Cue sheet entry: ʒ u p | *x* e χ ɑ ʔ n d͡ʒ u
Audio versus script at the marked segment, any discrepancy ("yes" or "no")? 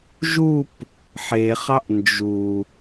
yes